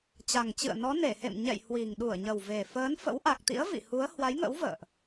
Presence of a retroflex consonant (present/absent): absent